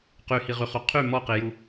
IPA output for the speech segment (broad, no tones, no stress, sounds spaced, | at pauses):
q y h i ʁ y χ u qʰ y m ɔ q i j u